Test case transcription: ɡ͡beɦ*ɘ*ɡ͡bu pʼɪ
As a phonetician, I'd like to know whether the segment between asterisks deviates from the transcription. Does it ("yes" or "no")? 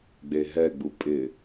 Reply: yes